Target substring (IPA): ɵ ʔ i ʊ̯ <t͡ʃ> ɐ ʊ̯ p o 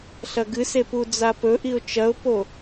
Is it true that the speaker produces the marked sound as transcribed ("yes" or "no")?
yes